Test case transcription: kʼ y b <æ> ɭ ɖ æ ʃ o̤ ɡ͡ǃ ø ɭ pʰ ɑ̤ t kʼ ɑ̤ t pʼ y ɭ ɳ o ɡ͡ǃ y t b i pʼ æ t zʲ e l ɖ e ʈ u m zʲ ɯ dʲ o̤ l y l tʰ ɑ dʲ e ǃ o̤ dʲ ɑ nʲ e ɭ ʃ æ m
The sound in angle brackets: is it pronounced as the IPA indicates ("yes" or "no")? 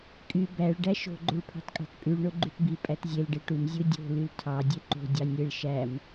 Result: yes